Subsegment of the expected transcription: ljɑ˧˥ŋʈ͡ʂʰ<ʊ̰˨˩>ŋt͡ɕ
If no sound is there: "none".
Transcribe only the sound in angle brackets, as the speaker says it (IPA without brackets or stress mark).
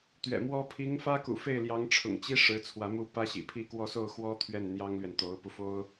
ʊ̰˨˩